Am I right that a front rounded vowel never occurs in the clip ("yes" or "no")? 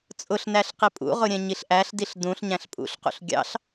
yes